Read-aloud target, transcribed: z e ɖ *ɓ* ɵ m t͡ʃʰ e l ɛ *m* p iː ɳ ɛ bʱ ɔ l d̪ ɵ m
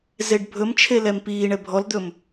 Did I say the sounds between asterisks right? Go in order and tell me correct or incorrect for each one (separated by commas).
incorrect, correct